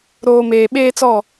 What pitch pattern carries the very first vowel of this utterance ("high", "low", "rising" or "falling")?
low